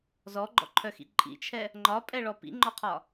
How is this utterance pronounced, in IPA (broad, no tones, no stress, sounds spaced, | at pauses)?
z ɔ ɡ͡ǃ ɔ̰ ǃʰ œ x ḭ ǃʼ ḭ t͡ʃʰ ɛ | ŋ͡ǃ ɒ pʼ ɛ ɭ ɔ p ḭ ŋ͡ǃ ɔ qʰ ɒ